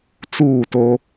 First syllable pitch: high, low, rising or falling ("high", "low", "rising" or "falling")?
falling